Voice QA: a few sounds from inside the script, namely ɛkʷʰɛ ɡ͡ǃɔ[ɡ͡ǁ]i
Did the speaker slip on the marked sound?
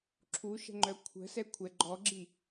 no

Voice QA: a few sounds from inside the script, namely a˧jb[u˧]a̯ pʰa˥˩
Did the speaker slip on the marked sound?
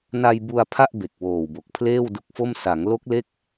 no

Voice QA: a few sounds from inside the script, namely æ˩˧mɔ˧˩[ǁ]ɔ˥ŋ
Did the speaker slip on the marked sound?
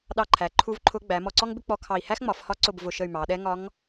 yes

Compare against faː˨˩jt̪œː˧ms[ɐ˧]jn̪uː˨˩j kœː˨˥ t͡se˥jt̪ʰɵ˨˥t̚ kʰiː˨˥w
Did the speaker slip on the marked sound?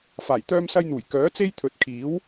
no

